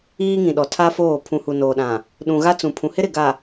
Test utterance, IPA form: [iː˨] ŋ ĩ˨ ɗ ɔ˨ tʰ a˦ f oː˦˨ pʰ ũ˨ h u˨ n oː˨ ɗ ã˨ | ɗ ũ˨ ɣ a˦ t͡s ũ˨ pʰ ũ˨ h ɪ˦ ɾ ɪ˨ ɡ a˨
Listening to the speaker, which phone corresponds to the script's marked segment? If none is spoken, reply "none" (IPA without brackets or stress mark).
iː˦